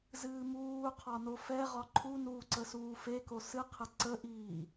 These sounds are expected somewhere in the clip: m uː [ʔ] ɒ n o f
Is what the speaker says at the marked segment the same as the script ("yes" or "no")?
no